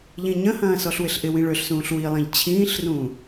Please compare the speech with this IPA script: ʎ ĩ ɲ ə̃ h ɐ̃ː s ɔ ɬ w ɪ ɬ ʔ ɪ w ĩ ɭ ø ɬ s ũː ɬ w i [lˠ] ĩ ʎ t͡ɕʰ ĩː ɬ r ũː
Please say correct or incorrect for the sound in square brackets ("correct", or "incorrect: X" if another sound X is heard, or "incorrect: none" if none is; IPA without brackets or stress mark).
correct